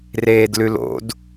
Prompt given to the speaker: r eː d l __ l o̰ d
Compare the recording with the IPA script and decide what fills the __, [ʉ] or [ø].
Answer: ʉ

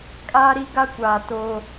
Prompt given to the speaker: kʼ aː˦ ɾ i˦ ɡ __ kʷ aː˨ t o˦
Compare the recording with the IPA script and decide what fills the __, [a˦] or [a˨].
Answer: a˦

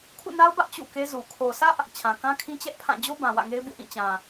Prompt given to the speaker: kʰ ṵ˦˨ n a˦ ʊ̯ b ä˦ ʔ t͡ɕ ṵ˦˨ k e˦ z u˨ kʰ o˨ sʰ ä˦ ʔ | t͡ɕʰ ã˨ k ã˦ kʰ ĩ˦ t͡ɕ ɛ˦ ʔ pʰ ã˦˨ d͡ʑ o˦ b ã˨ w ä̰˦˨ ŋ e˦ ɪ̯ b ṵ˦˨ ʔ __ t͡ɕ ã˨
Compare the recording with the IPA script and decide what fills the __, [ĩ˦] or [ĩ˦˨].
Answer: ĩ˦˨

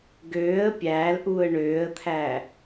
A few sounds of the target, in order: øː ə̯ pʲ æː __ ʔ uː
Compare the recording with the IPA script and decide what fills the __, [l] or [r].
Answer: l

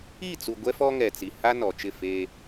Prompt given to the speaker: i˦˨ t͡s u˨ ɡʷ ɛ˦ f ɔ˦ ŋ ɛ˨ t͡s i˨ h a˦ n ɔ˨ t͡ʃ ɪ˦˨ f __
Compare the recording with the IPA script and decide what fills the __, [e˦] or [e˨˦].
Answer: e˦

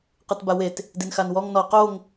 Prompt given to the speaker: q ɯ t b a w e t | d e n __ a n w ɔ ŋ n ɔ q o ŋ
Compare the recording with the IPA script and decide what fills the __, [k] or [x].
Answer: x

